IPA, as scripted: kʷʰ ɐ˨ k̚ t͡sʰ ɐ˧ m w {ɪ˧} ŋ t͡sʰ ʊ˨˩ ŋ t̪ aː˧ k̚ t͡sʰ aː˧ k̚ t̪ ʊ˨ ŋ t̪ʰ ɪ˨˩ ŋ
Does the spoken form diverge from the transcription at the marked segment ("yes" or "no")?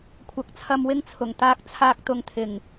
no